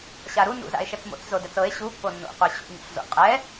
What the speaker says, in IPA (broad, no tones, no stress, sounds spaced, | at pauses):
ɕ a ɾ u n ṵ z a̰ e̯ ʃ ɛ t͡s m o̰ t͡s z o d ɛ t͡s ɤ e̯ ɕ u pː o nː o̰ qʷ ɛ ɕ ṵ ɲ o̰ ɬ z o̰ qʼ ɛ